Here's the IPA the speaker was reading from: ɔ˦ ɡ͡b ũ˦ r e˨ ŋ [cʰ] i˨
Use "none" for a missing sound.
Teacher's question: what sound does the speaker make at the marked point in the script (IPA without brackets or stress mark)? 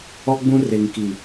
k